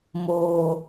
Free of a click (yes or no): yes